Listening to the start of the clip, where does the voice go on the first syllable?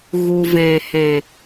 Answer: low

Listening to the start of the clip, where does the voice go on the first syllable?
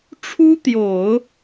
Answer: high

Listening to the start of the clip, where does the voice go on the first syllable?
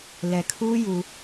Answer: low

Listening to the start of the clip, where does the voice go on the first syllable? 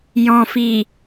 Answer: low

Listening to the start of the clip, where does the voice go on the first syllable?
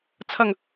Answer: low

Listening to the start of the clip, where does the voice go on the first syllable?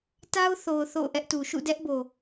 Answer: high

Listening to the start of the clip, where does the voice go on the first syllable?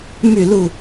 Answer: falling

